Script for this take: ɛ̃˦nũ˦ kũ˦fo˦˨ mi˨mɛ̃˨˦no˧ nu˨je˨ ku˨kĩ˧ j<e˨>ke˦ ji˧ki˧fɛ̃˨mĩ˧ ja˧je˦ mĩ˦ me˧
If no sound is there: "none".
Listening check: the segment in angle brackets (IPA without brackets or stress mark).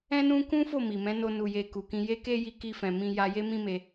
e˦